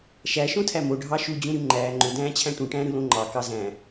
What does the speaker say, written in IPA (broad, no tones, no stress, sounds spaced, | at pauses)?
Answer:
ʃ æ ʃ õ tʰ æ m o ɖʱ ɑ ʃ u d͡ʑ ũ ɾ y ŋ͡ǃ æː ŋ͡ǃ ø d æ̃ː t͡ɕʰ æ̃ ʈ ũ ʈ æ̃ː ɾ ɯ l õ ŋ͡ǃ ɑ k ɑ z æ̃